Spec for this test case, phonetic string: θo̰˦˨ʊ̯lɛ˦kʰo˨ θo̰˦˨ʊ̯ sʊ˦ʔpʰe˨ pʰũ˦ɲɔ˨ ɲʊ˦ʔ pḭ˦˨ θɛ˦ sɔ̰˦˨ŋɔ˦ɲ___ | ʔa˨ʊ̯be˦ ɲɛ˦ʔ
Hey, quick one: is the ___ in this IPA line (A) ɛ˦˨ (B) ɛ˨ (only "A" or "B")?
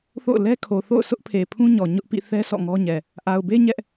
B